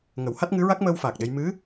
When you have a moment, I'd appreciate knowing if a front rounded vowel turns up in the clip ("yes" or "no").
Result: no